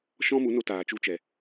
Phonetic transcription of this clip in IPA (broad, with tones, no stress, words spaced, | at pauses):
ʃɔ̃˦mu˨˦no˧ taː˨t͡ʃu˧t͡ʃɛ˨